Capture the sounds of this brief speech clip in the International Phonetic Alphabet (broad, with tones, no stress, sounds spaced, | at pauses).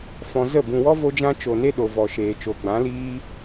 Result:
f ɔ̃˧ z ə˦˨ b ũ˨ w ɔ˦ v o˦ d͡ʒ ã˦ t͡ʃ o˨ n e˦ ɗ o˨ v ɔ˨ ʃ eː˨ t͡ʃ o˨ ɡ͡b ã˨˦ l iː˦